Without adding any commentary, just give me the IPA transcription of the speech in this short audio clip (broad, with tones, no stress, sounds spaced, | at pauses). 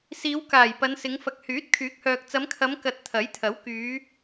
s iː˨˧ w k aː˨˩ j p ɐ˨˧ n s ɪ˨˧ ŋ f ɐ˨ k̚ h yː˨˥ t̚ kʰ yː˨˥ k̚ h œː˨ k̚ t͡s ɐ˨˧ m kʰ ɐ˨˧ m k ɐ˨ t̚ t̪ʰ ɐ˨˥ j t̪ʰ ɐ˨˥ w k yː˨˧